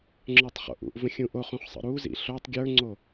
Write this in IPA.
ŋ͡ǁə˞tˤχo̰ʔṵʔvə̃ xʲũʔoχũχ sˤə̰ɾuzḭ ɬotˤ ɡʲə˞ŋ͡ǀo

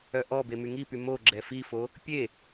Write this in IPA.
œʔɔbe myŋipy mo ɡ͡ǁɛfifo | pʲe

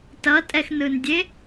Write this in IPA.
tʌtʼɛxnɯndʲe

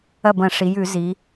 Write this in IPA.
ɐ˥˩bɐ̃˧˩˧ʂi˩˧jʉ˧˩˧ zi˩˧

